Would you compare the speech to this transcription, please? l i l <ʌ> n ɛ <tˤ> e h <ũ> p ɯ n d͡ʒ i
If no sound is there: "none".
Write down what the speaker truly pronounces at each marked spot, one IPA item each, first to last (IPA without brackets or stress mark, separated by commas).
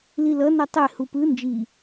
ʌ, tˤ, u